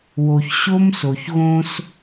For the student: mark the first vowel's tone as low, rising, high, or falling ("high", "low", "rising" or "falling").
low